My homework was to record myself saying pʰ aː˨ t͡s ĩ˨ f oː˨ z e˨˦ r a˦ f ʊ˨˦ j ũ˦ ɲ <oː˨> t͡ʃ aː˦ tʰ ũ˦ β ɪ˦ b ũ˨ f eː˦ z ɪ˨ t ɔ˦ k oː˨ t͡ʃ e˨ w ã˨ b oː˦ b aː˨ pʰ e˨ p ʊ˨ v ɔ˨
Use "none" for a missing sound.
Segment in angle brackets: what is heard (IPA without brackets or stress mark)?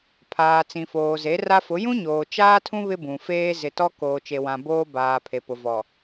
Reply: oː˨